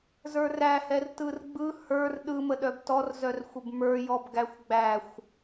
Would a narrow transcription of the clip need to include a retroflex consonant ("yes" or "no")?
no